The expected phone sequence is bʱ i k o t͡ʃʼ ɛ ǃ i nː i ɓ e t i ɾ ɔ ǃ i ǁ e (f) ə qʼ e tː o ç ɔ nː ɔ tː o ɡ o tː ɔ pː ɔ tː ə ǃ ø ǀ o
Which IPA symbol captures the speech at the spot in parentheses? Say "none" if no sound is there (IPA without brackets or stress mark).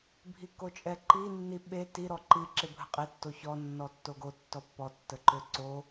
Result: bʱ